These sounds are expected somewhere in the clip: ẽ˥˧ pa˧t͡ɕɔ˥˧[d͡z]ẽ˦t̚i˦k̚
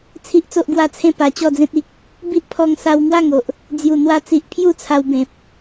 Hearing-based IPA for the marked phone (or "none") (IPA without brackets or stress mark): d͡z